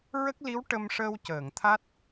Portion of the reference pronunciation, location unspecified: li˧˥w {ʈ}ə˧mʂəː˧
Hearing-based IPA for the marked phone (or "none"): ʈ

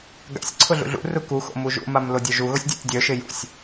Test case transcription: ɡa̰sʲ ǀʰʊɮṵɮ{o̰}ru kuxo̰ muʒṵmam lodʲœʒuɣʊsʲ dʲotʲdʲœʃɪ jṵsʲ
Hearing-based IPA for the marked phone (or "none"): ṵ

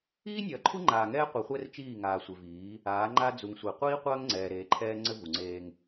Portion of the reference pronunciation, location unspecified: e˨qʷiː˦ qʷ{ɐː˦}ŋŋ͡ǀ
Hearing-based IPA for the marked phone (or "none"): ɐː˦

